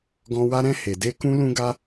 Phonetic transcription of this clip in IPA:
ɡ ɔ̃˦ w a˦ ɾ ɛ̃˦ h e˧ d e˦ k ũ˦ l ũ˦ ɡ a˦

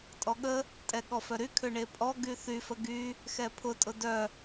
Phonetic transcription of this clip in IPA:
tʼ ɔ ɠ ə | tʼ ɛ ɠ ɔ f œ ɾ y kʰ ʏ ɳ e pʼ ɔ ɡ y θ y f ə ɡ y | x ɛ pʰ ʊ tʼ ʊ d œ

